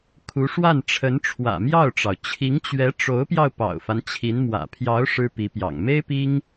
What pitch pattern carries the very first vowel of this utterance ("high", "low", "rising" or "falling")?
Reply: rising